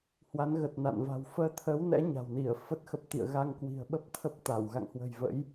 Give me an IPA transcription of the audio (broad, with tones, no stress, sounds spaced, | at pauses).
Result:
h w a˨˦ n ɣ ə˨˩ t̚ n a̰˧˨ n v a̤˨˩ w f əː˧ t̪ʰ əː˨˦ w n ɛ̰˧˥ ɲ a̤˨˩ w n i˧˩ ə̯ f ə˦˥ t̚ x ə˦˥ p̚ t̪ ḭ˧˨ ə̯ ɣ a˧ ŋ k w i̤˨˩ ə̯ ɓ ə˦˥ p̚ t̪ʰ ə˦˥ p̚ t̪ a˧˩ w ɣ a̰˧˨ ŋ h w ə̤˨˩ j v ə̰˧˥ j